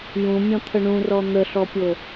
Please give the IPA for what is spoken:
j ũ mʲ ɔ̃ t̪ʰ ə ɳ ũ r ɔ n̪ ə ɬ ɔ pʲ o

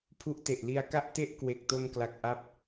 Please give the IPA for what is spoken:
pʰ u˦˥ ʔ t e˨˩ ʔ l i˧ a̯ k a˥˩ ʔ t e˥˩ ʔ k w e˨˩ k̚ t o˧ n k l a˨˩ k̚ ʔ a˥˩ p̚

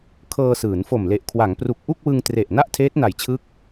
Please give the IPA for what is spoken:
kʰ ɤː˧ s ɯː˩˦ n f o˨˩ m l e˨˩ ʔ kʰ w a˩˦ ŋ p r u˨˩ k̚ ʔ u˥˩ k̚ w ɯ˧ ŋ t r e˨˩ ʔ n a˥˩ ʔ tʰ eː˦˥ t̚ n a˨˩ j t͡ɕʰ ɯ˦˥ k̚

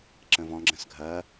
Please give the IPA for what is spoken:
ǁ ə̃ v ɔ̃ ɡ͡ǁ ə̃ s ɡʱ ɐ

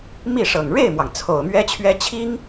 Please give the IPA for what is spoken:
m i˥˩ ʂ ɤ˨˩ ŋ ɻ e˥˩ ɪ̯ m w ɑ˩ ŋ t͡sʰ o˨˩ ʊ̯ m ɥ ɛ˥ t͡ɕʰ ɥ ɛ˥ t͡ɕʰ i˥ ŋ

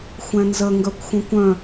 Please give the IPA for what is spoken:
xʷ ɛ̃ n z ə ŋ ɡ œ kʷ xʷ ə̃ kʷ œ̃

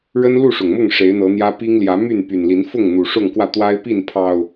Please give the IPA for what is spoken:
ɻ ə˦ n l u˥˨ ʂ ʊ˨˩ ŋ m ʊ˥˨ ŋ ʂ e˨˦ ɪ̯ n̪ ɤ˨˦ n̪ j ä˦ p i˦ ŋ l j ä˨˦ m y˥˨ n p y˨˩ n l i˨˦ n f ʊ˥˨ ŋ n̪ u˨˩ ʂ ʊ˥˨ ŋ k w ä˥˨ t̪ w a˦ ɪ̯ p i˥˨ n pʰ ɑ˨˩ ʊ̯

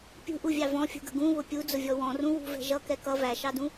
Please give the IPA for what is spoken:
pʲ ṳ ʔ u vʲ ɑ v ɔ̃ fʲ ṳ ɡ ə̤ ɡ ũ β ʊ pʲ u d͡z ʊ vʲ ɔ w ɔ̃ r ũ w ṳ v ɛ̤ ʒ ʌ k ɛ k ʌ v æ ʃ ɑ d ũ

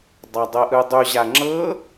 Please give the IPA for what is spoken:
dˤ a dˤ ɤ ʔ ɯ dˤ u ʑ a ŋ͡ǁ ɤ

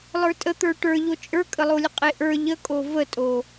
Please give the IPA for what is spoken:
lˠ ə˞ tʼ ə t̪ ə˞ ʈ ə˞ ʎ o t͡ʃʼ ə˞ kʼ ə lˠ o lʲ ə qʼ e ʔ ə˞ ʎ ə kʼ o v ə tʼ o

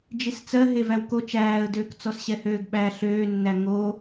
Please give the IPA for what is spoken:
d͡ʒ i s t͡s ɜ ɦ e v æ w k o t͡ʃ æː ə̯ d øː k t͡s ɔ s ɕ ɛ h øː ɡ ɓ æ ɬ øː nː æ ŋ o

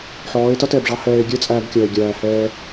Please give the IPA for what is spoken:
ħ ɔː˨˦ e̯ t ʌ˦ t ɛː˨ b ʐ ɑ˦ h ɛː˧ e̯ ɡʲ ɛ˦ t͡sʼ æː˧ b kʲ ʌː˨ e̯ ɡʲ æː˨ h ɛː˧

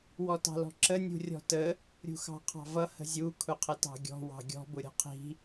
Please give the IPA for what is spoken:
w ɔ t ɑ̤ l ɔ̤ ǁ ə nʲ ṳ rʲ ɔ̤ t ə | ɾʲ ṳ x ɑ̤ qʰ ɑ̤ v ʌ h ə̤ zʲ u kʰ ʊ qʰ ə t ɑ̤ ɡʲ ɔ̤ w ɑ̤ ɡʲ ɔ̤ b ʊ ɾʲ ɔ̤ qʰ i̤

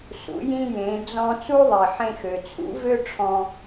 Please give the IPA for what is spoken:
s ṵ˩˧ j ĩ˧ j ẽ˩˧ d͡z ɔ̃˧ t͡s u˥ ðˤ i˩ ħ ẽ˧ x ø˩ t͡sʰ ṵ˧˥ v ø˥ ʈ͡ʂʰ ɔ̃˧

